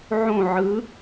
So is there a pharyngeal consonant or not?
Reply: yes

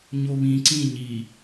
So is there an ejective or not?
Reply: no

